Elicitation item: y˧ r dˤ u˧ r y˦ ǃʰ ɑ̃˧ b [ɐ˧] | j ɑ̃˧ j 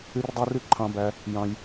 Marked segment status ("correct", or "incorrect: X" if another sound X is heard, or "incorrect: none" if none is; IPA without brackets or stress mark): incorrect: æ˧